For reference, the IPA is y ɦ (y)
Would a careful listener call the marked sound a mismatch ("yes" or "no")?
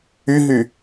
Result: no